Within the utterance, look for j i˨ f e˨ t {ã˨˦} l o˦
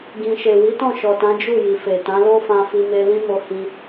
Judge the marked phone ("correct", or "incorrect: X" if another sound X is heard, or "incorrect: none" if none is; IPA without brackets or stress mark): correct